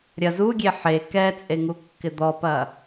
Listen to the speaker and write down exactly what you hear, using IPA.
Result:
ɾʲ ɐ z u ɡʲ e ħ e k ɛ t͡sʼ e ŋ u kː ɪ d̪ ɔ p ɐ

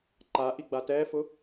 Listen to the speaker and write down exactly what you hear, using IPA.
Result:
ǃ a ʔ i ɡ͡b a t ɛ f ʊ

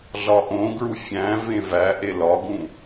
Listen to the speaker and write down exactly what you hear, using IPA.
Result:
ɮ ɒ ʔ õ ɡ ɹ u fʲ æ̃ v ẽ v æ ʔ e l ɒ ɡ ũ

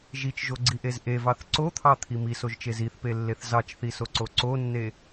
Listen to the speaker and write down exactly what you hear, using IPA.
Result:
ʒ i t͡ʃ ʒ o ɡ͡ǀ i ʔ e z ʔ e v ɑ θ ǀ o t̪ʰ ɑ t̪ʰ i m i s o ʒ t͡ʃ e z i θ p e lː e θ z ɑ t͡ʃ θ i s o ǀ o ǀ o nː e

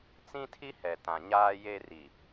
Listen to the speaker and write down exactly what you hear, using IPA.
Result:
t͡s ĩ˦ tʰ i˦ h ɛ˨ t ã˨ ɲ aː˦ j e˦ r i˨

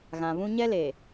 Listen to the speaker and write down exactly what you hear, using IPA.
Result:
ɣ ã˨ β ũ˦ ɲ ɛ˦ l e˨

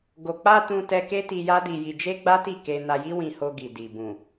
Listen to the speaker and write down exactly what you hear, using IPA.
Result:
ɡ o˨ k͡p a˧ t ũ˧ t ɛ˧ k e˦ t i˧ j a˦ d i˧ j i˧ d͡ʒ e˦ ɡ͡b a˦ t i˦˨ k e˧ n a˧ j i˦ w ĩ˧ h o˧ ɡ i˨ d i˨ b ũ˨

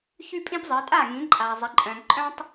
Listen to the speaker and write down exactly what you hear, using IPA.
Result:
ç y˦ pʼ ĩ˦ p zˤ i˩˧ tʼ a˥˩ ŋ ĩ˩˧ ǃʼ a˩ zˤ ɪ˩˧ ǃʼ œ̃˩ ǃʼ œ̃˦ tˤ

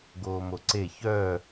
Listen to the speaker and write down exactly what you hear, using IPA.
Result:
ɡ oː m o ǀ e ç œ

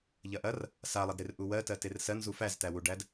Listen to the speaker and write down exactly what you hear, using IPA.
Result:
ʎ ɐ ʔ ɐ r | s a lˠ ɐ d ɾ e r ʔ u w ɜ t ɜ t e r s ɜ n z u f æ z t æ w u ɖ æ d

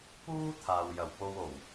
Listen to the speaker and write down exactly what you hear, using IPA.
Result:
p uː˥ t̪ʰ aː˨ w j ɐ˨˩ w p o˧ w o˨˩ w

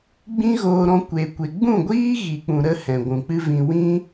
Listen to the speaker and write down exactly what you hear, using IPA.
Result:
ɡ͡b ĩ˦ ɣ oː˧ ɾ ɔ̃˧ kʷ e˨ kʷ e˨ ɡ͡b ũ˦˨ ɡʷ iː˦ ɣ i˨ k͡p ũ˨ ɾ ə˧ h ɛ̃˨ ɡʷ ũ˨ k͡p ɨ˦ v ĩ˧ w ĩ˦

